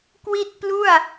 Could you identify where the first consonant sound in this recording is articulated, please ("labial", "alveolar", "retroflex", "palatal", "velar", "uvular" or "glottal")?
velar